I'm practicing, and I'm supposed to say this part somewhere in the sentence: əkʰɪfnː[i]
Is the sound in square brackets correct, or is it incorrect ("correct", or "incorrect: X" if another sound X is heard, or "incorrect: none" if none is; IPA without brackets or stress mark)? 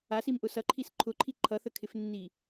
correct